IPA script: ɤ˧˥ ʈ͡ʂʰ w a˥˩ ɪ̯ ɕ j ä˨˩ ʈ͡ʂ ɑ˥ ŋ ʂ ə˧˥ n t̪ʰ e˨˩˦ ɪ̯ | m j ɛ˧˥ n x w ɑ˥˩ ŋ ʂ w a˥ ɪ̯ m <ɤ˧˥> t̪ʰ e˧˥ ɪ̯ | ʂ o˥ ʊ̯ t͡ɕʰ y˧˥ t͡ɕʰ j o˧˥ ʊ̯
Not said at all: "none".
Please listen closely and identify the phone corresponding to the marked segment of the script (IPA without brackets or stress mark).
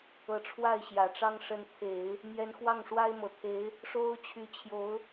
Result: ɤ˨˩